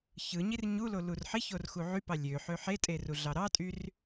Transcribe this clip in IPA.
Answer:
çɯɲir ɲulo lurħiçor xuʕypɑ lʲø ħøħetʼe ruɮɑɾɑtʼyr

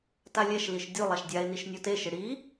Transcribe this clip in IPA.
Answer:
talʲɛʃliʃ dʲu lˠaʃdʲae̯niʃ nʲoteʃɪ ɽi

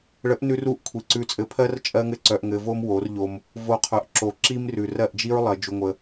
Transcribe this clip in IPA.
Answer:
ɭə˨˦ʔnʉ˧ru˧ʔ kʷʰi˨ǀʉ˧t͡sʼɘ˧pʰɜ˦r t͡ʃʼɜ˦ŋɘ˦ǀœ˧ʔŋɘ˧ vo˦mwo˨˦rʎo˧m | vo˧qʰœ˨ʔ ǁo˨ǁi˦mrʉ˨ rɜ˦˨ʔd͡ʒi˦ɹlˠɜ˨ d͡ʒu˧ŋʷə˧

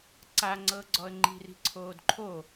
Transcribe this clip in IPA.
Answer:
ǀaŋ͡ǀɤɡ͡ǀɔə̯ ŋ͡ǃi̤ri̤ǀʰoːd ǃʰo

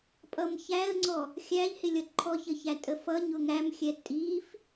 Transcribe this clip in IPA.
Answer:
pʼʌmçæə̯ŋ͡ǀɔ | xʲæʎhɪlʲʌ ǃʰɔçəçæ tʼəfʌ ɲʊŋæmxʲɛ tʼif

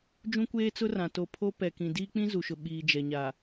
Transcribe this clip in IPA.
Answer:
d͡ʒũ˦kʷeː˦t͡sʊ˦rã˨ to˨pʰo˦ pɛ˨kĩ˨ diː˦k͡pĩ˦zu˨ʃʊ˨ ɓiː˨ d͡ʒɛ˨ɲaː˨

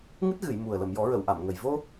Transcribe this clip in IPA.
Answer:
ŋɨ˦˥t̚ɣɨ˨˩˨j mu˨˩ə̯ lə˨˩˨mjɔ˨˩˦ɹə˨˩˨w ʔa˨˩˨mŋə˨˩j vo˧

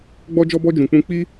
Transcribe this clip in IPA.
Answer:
ɡ͡bɔ˧d͡ʒɔ˧bɔ˧d͡ʒũ˨ k͡pũ˧ k͡pi˦

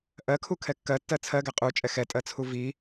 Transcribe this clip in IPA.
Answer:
ʔɜkʰukʰɛ kːɜtːɜ t͡sʰɜɡɛ qʼut͡ʃʼɛ xɛtʼɜt͡sʰu vi

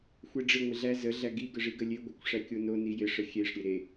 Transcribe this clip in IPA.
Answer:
xʷeɖ͡ʐɪ ŋʷɪɮæ zə ɮæɡi ɡəʐiɡəlʲe ɡʷɪkʷ ʂækʲono nijɪ ʂəxʲeʂ ɾʲeɾe

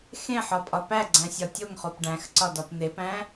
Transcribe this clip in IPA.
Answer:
xẽħɒpʼɒ pæɡ͡ǀæ̃sʲɒ tʲoŋχop ɖæ̃xǀɒdɒp n̪epæ̃

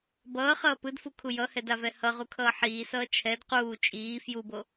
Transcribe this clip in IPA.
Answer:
bʌːχʌː pɯdfukʰu jʌhɛdavɛ hʌʁukʰʌː ħiːsʌː t͡ʃʰɛd quː t͡ʃʼiː fjubo

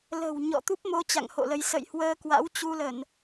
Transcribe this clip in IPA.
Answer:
lə̤˨˩w ɲɔ̰˧˨t̪u˦˥p̚mo˧ t͡ɕa̰˧˨ŋho̰˧˨lə˨˦j sə̰˧˨j hwəː˧kwa̰˧˥wt͡ɕu˧lə˧˩˨n

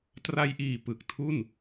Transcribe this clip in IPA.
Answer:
tra˧jʔiː˨˩ pɯ˨˩k̚tʰu˥˩n

